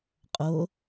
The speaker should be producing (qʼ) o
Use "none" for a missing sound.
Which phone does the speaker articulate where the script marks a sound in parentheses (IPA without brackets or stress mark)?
qʼ